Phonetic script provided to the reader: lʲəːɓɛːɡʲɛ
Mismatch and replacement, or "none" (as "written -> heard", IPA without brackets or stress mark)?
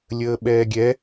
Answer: none